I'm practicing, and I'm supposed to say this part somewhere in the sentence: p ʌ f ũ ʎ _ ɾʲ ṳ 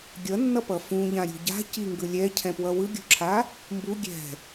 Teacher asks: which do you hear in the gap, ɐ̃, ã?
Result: ã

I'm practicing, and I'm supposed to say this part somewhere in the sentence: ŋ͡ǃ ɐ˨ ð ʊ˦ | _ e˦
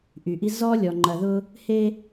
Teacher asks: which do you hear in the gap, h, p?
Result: h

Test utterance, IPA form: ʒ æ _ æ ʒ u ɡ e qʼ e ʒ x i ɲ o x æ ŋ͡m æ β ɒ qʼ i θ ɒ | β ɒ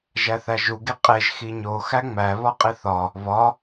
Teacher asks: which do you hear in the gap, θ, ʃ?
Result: θ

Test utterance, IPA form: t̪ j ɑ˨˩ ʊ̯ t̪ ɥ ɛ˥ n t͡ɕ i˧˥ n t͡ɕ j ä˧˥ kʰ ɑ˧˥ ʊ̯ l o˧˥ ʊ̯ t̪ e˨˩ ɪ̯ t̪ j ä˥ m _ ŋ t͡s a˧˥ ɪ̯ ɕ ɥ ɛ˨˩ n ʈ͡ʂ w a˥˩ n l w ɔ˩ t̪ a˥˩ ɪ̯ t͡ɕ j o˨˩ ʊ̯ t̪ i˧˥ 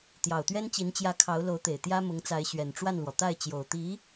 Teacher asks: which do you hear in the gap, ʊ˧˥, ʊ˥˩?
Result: ʊ˧˥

